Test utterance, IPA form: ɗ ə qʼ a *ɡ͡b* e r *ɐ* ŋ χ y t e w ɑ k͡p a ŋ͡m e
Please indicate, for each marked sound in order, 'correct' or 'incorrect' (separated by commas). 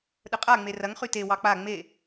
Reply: incorrect, correct